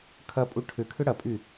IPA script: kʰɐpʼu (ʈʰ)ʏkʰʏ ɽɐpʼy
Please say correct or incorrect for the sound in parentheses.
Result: correct